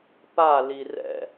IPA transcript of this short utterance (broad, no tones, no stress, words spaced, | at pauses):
pa lirɛ̰